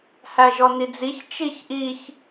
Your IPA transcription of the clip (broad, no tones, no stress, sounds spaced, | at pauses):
h æ ʒ ɔ n i d͡z i ç t͡ʃ i ç ʔ i ç